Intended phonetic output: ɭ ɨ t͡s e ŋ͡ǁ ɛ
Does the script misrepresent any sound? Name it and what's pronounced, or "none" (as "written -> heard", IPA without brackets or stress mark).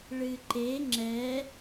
t͡s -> ǃ